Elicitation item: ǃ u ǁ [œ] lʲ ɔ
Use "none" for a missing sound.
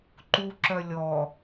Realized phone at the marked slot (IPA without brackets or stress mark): œ